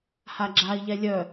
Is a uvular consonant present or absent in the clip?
absent